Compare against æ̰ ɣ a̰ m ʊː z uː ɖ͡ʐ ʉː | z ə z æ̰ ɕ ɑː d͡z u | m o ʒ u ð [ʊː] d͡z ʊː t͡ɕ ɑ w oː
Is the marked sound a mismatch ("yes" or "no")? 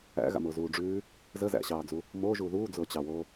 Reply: yes